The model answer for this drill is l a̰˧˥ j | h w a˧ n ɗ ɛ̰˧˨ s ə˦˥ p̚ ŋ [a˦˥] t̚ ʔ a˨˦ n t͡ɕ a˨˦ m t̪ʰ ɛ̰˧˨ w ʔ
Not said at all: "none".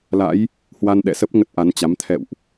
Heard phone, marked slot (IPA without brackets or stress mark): ə˦˥